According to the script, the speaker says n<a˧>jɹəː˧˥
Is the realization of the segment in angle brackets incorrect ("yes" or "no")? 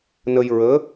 yes